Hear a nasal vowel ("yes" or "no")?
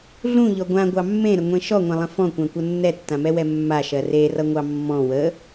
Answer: yes